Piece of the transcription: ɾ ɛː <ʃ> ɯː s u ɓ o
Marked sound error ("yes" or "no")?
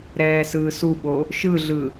yes